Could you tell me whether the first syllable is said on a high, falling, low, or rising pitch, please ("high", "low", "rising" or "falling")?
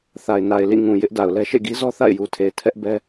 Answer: low